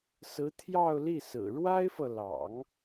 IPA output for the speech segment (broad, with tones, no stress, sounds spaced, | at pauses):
s ɹ̩˧˥ t̪ʰ j ɑ˥˧ ʊ̯ l i˥˩ s ɹ̩˨˩ ɻ w a˥ ɪ̯ f ɤ˨ l ɑ̰˨˩˦ ŋ